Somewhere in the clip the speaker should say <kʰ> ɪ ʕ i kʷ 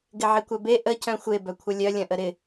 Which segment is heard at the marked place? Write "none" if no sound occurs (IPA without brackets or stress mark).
ɡ